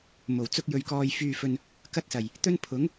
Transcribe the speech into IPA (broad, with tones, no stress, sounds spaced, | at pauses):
m o˨˩ w t͡s ʊ˥ k̚ j ɵ˧ ɥ k ɔː˧ j f yː˧ f ɵ˧ n | k ɐ˥ t̚ s ɐ˨˩ j | t̪ ɵ˥ n pʰ ʊ˨˥ ŋ